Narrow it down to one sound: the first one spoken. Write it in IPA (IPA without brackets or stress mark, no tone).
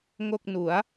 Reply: ŋ